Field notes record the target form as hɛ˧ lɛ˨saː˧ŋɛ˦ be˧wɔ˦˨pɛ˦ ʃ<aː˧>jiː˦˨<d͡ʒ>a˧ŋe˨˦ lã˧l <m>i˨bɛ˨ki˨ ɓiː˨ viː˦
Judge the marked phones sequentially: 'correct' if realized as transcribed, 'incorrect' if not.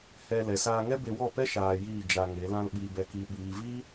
correct, correct, incorrect: ɓ

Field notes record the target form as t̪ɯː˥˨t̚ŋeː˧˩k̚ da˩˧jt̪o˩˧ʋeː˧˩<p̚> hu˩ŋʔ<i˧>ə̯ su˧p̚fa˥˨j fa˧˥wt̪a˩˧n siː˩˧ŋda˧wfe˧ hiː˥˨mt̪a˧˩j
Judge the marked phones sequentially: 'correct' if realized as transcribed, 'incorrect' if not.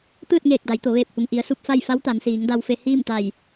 correct, incorrect: i˩˧

